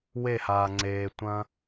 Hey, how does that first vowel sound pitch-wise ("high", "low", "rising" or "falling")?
falling